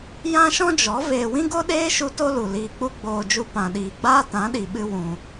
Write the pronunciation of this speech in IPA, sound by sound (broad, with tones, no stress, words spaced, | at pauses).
jã˦ʃɔ̃˦d͡ʒɔ˨˦ veː˧wĩ˦ɡo˦ɗeː˦ ʃu˦to˦lu˨ liː˧k͡pu˦ ɡ͡boː˧d͡ʒu˧ pã˨ɗiː˨ɡ͡baː˦ tã˨˦ɗi˨ɓɨ˧ wũ˨